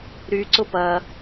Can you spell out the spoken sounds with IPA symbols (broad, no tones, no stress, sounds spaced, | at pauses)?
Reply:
ɾ y ǀ ʊ p ɐ